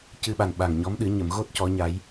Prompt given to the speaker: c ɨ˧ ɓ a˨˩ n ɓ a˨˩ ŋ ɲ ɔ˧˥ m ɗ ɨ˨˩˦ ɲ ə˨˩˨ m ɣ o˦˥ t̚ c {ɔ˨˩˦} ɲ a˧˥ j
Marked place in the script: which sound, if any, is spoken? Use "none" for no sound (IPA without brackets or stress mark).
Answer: ɔ˧˥